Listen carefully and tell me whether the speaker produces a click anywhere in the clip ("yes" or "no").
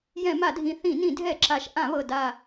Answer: yes